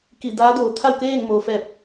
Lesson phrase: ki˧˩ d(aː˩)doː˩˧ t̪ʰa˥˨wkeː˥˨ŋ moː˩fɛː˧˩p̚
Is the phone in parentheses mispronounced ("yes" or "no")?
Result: yes